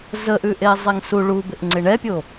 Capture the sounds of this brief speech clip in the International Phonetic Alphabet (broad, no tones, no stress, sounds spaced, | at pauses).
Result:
z ə ʔ ʉ ʔ e zˤ e ŋ s u ɭ u b ɪ ʔ ŋ͡ǀ ɪ ɳ ɛ pʲ o